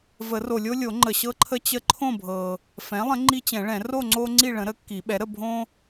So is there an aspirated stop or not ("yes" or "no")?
yes